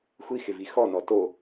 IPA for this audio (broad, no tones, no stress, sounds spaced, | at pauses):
xʷ i x ɪ v i x ɔ n ɔ t o